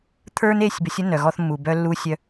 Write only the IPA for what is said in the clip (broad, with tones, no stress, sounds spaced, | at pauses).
t̪ʰ ə˞˦ n e˦˨ sʲ b ə˨˦ sʲ ə˦ n œ˨ ɣ ɔ˦ θ mː u˨ b œ˦ lː u˦ sʲ œ˦